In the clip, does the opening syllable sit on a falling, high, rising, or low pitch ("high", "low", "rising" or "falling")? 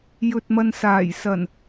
low